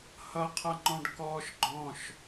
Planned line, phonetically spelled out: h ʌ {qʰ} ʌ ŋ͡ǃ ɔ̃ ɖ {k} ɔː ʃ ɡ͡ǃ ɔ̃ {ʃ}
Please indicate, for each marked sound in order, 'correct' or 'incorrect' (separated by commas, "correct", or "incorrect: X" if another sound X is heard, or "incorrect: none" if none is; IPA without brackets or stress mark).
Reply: correct, correct, correct